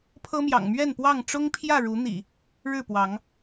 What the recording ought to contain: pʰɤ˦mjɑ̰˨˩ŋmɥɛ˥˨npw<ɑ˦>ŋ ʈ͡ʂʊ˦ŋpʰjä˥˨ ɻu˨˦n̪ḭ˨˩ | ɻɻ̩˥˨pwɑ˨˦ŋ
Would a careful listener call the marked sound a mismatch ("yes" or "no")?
yes